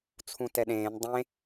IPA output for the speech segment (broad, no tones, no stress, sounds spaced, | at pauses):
t͡sʰ ũ t ɛ ɗ ẽː n dˤ ẽ